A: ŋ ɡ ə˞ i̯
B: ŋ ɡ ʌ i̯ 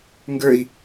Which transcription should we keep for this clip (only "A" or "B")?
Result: A